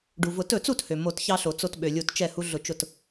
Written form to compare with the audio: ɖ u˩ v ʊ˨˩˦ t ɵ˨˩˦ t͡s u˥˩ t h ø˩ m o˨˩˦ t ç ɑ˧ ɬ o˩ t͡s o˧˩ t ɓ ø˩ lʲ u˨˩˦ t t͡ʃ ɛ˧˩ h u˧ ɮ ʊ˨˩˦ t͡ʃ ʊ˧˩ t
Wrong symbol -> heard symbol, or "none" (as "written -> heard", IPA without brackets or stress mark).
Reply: none